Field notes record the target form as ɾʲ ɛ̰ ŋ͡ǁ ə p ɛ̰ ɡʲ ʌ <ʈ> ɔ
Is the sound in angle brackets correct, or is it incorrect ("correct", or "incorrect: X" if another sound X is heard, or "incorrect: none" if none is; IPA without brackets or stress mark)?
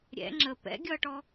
correct